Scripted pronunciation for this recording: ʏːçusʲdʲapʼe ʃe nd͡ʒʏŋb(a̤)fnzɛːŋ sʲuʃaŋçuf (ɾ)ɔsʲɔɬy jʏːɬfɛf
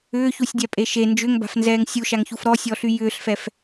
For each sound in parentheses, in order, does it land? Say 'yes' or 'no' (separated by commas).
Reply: yes, yes